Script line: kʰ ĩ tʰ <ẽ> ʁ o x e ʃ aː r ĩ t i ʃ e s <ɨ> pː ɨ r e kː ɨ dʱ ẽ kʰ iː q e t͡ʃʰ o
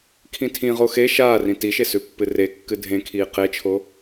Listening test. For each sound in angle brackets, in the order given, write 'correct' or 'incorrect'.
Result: incorrect: ĩ, incorrect: ʉ

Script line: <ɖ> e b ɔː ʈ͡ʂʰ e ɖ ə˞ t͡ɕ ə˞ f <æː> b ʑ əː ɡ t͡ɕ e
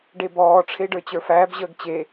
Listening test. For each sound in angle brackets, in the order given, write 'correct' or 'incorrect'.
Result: correct, correct

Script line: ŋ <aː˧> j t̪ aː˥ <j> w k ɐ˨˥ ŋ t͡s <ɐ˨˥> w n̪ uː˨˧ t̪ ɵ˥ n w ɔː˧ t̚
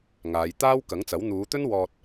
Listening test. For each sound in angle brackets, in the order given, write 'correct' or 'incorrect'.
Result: incorrect: aː˨˧, incorrect: none, correct

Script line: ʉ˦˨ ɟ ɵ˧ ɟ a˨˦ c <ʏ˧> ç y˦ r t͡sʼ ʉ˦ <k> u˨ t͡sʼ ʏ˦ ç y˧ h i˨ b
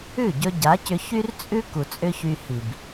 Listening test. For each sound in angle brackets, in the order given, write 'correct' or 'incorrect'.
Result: correct, correct

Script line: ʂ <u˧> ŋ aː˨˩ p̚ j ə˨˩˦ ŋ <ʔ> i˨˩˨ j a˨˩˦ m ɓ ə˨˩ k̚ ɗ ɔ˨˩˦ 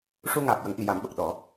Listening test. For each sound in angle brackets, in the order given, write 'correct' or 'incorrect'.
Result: correct, correct

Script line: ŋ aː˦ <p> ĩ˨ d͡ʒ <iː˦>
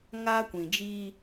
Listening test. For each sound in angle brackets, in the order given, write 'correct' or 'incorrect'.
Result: incorrect: kʷ, correct

